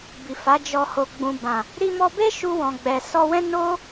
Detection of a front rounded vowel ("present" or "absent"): absent